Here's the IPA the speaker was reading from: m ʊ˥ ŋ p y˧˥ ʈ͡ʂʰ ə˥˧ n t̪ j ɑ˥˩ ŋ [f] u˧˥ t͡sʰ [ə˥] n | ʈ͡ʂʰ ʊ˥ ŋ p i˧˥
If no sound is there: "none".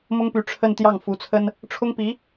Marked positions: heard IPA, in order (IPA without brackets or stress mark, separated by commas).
f, ə˥